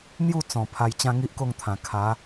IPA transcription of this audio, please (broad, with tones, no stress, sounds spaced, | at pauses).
n̪ j u˥˧ t͡s ɔ̃˨˩ pʰ a˧ j t͡ɕ ã˦ ŋ i˦ ʔ k o˥˧ ŋ t̪ʰ ã˨˩ kʰ a˨˦